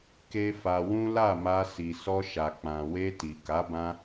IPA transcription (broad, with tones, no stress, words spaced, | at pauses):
ke˦ fa˧wũ˦ la˦˨ma˧ si˨sɔ˧ ʃa˨k͡pã˨we˧ ti˨ ka˨˦bã˧